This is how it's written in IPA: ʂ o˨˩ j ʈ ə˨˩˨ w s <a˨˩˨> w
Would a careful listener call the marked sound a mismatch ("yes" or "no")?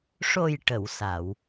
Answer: no